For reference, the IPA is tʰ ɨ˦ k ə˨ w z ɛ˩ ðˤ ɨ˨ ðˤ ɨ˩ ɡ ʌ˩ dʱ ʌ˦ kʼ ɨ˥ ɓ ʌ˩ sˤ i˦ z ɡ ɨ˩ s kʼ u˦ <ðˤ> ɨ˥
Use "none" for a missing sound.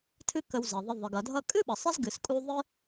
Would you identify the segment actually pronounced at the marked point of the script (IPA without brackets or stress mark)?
ðˤ